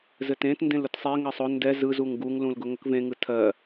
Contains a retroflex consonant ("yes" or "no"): no